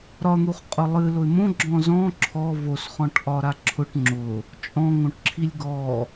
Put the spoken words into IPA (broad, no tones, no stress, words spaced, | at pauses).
ɾɒn̪uχqʼʊ lˠɨlʊɪ̯ mõɡ͡ǁɔ̃ zɔ̃ ǁʰɔ βosχɔ̃ʈʔɒɾa ǁʰʊʈ ŋ͡ǁʊ | t͡ʃʼɔ̃ŋõʈǁʰilʲ ɡɔ